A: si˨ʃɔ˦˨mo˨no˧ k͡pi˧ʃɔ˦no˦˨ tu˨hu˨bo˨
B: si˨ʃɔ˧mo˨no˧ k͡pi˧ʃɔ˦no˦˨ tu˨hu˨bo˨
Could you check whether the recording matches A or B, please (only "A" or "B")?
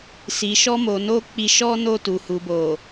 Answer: B